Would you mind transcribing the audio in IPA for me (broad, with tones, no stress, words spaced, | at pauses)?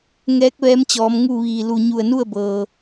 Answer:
ŋɛː˧˥k̚ ʋɛː˧˥mt͡ɕɔː˩˧m ŋu˥˨ʋiː˧˩ lu˧˩ ɲu˧˩ə̯nu˥˨ə̯bɤː˩